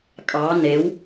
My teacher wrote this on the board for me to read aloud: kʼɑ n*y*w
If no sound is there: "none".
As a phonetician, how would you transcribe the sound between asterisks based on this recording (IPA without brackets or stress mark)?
e